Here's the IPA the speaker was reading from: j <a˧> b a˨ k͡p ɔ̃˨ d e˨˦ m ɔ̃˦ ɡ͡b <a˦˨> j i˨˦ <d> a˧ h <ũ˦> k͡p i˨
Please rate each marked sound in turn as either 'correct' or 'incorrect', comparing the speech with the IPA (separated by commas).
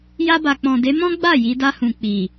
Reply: correct, correct, correct, incorrect